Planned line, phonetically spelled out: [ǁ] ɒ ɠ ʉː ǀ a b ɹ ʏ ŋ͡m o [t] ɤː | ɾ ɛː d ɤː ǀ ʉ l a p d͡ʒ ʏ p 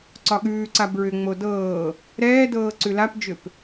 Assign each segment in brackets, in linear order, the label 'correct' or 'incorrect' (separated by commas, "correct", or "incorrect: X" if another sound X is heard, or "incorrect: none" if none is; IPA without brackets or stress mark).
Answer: incorrect: ǀ, incorrect: d